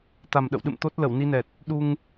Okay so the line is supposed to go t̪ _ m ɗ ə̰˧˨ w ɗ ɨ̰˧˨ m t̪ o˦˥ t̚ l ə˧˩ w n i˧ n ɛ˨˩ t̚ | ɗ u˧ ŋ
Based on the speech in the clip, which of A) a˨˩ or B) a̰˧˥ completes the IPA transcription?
A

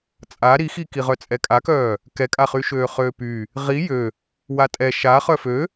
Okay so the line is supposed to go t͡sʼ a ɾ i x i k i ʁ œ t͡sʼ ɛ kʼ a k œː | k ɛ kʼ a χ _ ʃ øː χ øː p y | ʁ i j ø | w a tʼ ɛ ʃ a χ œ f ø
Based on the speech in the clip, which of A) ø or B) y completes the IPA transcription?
B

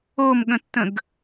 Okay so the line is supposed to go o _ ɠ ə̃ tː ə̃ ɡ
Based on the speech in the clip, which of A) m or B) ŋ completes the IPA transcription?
A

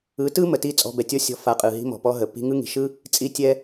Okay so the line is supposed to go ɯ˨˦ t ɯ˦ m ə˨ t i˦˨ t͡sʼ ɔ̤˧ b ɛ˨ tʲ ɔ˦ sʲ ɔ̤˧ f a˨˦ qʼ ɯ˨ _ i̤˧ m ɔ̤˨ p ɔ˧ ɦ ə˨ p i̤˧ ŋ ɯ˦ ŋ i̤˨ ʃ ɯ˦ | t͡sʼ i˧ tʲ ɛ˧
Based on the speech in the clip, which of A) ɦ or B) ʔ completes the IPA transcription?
A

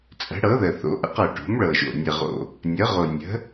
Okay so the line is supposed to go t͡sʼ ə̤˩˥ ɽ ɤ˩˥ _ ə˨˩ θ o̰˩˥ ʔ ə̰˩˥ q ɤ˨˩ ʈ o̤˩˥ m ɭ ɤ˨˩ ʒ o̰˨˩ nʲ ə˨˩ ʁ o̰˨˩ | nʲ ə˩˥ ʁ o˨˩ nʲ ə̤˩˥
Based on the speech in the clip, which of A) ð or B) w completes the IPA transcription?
A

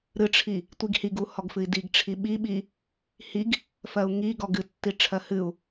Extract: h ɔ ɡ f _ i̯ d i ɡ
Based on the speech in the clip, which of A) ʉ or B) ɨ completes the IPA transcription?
B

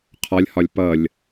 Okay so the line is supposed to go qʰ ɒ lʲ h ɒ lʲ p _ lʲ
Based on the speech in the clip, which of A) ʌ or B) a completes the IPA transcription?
A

